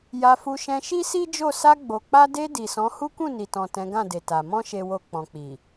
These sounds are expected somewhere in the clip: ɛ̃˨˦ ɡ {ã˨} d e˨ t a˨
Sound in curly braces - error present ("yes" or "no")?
yes